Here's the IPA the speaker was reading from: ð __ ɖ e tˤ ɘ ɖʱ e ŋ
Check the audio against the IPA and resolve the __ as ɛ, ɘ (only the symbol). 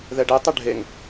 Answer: ɛ